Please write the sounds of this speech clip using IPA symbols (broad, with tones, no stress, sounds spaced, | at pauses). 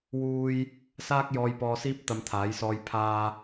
w uː˥ j | s aː˥ k̚ j ɔː˧ j p ɔː˧ s iː˥ p̚ t̪ ɐ˧ m t̪ʰ aː˨˥ j s ɔː˧ j pʰ aː˧